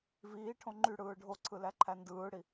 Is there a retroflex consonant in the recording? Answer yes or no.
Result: yes